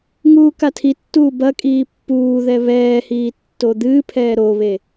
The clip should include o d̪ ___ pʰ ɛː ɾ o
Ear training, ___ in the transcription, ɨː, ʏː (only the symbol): ɨː